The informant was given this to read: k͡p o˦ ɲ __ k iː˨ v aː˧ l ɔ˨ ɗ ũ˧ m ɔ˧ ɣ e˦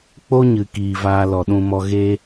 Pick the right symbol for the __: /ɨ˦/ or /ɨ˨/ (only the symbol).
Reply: ɨ˨